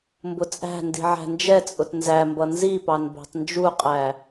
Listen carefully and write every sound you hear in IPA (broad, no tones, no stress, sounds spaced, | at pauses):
m b ʊ t͡sʼ æ̤ n d i̤ ʕ æ̤ n d͡ʒ ɛ t͡sʼ ʊ t n z æ m b ʌ n z i p ɑ n b æ̤ tˤ n d͡ʒ u qʼ æ